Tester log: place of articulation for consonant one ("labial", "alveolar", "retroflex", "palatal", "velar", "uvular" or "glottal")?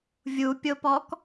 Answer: labial